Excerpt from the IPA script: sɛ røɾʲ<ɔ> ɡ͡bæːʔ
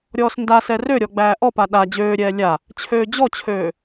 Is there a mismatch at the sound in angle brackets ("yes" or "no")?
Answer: no